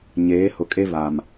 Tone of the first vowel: rising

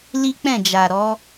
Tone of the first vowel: high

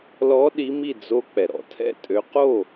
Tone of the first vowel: rising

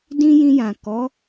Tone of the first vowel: high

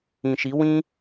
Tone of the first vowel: low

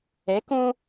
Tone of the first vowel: rising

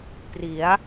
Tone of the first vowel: rising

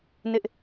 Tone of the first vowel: high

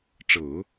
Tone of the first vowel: low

